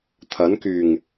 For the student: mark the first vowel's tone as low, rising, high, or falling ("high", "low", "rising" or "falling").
rising